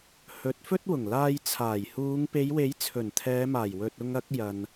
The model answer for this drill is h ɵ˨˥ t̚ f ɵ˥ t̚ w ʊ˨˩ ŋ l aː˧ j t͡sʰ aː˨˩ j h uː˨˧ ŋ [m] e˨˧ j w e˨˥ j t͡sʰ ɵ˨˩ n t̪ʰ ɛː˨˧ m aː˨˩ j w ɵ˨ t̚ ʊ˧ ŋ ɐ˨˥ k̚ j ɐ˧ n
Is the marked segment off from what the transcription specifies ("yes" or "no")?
yes